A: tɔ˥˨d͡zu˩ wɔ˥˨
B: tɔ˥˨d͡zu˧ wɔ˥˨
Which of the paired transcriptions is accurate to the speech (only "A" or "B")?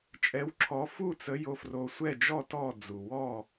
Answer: A